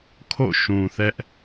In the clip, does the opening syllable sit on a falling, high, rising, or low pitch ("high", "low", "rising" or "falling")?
falling